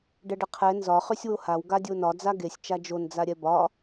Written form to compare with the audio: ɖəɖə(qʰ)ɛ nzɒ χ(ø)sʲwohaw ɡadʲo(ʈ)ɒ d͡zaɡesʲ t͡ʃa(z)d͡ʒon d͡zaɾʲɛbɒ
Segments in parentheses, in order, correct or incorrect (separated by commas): correct, correct, incorrect, incorrect